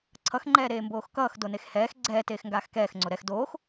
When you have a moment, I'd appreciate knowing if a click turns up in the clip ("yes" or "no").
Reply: yes